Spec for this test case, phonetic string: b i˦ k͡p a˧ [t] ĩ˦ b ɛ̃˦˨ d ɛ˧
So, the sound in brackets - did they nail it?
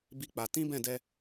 yes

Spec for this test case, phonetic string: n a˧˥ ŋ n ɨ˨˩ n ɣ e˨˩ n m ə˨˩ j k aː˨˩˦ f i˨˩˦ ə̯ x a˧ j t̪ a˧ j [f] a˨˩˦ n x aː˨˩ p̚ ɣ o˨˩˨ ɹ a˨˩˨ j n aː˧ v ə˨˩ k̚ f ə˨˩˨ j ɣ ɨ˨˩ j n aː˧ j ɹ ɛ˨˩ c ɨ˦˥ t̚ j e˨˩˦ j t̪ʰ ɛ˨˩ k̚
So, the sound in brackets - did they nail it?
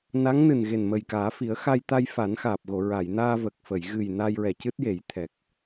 yes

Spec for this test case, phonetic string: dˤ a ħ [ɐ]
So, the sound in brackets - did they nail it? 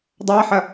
yes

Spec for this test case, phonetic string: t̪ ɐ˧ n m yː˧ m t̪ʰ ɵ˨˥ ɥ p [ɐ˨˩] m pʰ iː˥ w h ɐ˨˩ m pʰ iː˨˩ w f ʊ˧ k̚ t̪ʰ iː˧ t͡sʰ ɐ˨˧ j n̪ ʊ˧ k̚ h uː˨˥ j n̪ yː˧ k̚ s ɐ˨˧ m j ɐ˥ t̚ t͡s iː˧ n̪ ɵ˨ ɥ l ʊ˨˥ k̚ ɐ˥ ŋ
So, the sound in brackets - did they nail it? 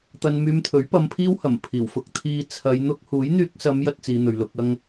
no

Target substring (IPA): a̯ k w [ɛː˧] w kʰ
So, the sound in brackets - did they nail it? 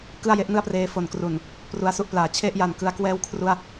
no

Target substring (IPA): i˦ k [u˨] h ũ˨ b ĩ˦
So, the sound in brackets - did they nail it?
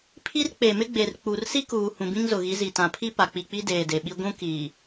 no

